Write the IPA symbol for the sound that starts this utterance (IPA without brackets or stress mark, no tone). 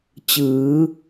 t͡ɕ